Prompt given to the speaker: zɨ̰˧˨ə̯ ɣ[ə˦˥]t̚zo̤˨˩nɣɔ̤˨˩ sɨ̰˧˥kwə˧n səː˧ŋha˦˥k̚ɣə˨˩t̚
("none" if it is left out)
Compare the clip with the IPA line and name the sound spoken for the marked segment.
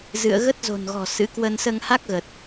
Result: ə˦˥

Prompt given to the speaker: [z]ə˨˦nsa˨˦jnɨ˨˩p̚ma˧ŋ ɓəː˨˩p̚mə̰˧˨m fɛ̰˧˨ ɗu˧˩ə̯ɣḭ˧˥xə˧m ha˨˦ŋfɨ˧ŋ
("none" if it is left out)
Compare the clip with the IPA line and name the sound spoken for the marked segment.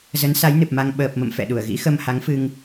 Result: z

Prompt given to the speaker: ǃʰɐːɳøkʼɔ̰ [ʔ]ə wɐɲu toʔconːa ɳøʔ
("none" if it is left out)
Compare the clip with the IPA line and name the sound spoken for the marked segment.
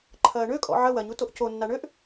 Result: ʕ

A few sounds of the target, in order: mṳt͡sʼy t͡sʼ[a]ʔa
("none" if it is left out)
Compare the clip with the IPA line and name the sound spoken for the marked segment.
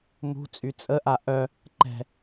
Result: ə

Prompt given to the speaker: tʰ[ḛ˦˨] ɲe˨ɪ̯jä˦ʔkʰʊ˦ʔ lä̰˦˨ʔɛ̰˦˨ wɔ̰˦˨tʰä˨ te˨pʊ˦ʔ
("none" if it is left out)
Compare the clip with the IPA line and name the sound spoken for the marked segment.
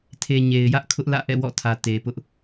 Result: e˨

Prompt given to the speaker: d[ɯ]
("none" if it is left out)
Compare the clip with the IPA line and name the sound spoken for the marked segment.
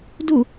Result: u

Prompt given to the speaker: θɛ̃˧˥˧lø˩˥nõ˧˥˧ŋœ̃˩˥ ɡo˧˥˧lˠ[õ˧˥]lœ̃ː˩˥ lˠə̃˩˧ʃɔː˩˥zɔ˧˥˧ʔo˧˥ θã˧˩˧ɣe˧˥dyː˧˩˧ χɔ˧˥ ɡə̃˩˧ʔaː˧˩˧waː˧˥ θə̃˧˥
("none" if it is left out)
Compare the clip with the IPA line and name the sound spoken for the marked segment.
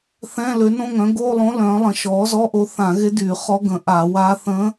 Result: õ˧˥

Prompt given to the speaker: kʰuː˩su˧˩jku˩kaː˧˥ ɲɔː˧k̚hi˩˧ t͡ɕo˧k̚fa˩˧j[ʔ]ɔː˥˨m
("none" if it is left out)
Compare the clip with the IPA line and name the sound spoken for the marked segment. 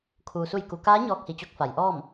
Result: ʔ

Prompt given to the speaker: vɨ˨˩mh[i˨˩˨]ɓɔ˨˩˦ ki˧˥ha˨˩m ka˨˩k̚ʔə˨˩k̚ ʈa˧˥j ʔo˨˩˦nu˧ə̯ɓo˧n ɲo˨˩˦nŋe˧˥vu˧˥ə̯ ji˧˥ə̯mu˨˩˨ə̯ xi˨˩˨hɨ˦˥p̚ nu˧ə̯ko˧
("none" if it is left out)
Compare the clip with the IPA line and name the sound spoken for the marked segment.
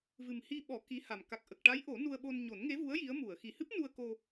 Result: i˧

